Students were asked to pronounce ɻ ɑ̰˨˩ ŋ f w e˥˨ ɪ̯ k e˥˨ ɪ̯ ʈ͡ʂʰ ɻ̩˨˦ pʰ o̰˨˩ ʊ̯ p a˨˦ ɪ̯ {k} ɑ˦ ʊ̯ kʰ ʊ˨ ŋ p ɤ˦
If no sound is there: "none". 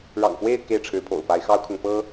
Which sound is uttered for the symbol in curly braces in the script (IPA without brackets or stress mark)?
x